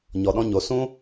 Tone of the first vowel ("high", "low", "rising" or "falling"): low